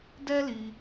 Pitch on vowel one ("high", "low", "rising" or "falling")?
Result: high